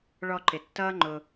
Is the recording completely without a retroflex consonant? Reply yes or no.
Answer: no